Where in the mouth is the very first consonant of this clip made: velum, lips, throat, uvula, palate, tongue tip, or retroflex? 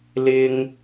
tongue tip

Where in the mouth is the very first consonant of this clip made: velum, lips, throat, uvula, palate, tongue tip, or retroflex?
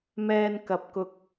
lips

